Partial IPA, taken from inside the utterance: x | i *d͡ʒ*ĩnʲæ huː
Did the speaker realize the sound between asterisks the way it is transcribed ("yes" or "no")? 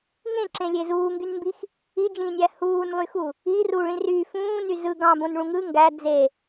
yes